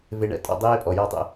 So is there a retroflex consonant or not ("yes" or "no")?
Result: yes